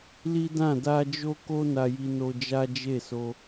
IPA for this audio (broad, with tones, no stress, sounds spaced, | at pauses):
l i˦ d ã˦˨ d a˧ d͡ʒ o˦ k o˦ n a˧ j i˧ n o˧ d͡ʒ a˦ d͡ʒ e˦˨ s o˧